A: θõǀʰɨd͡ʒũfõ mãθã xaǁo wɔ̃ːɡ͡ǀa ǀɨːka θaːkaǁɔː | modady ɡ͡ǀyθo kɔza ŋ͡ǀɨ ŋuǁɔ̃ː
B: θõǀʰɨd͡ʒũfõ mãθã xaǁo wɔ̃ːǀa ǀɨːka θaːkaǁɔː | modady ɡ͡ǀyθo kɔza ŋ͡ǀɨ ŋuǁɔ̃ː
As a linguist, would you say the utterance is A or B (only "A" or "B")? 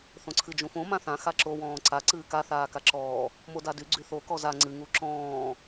B